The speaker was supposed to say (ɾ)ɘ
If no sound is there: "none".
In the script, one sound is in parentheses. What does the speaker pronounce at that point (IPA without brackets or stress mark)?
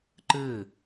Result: ǃ